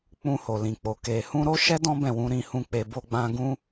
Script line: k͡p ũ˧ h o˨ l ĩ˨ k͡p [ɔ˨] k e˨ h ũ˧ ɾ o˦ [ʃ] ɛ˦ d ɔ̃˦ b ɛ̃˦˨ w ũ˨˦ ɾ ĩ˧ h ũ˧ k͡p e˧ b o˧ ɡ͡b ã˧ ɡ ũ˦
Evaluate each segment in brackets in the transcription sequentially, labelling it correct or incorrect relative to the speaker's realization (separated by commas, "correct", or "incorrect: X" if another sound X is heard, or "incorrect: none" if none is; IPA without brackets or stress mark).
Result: incorrect: o˨, correct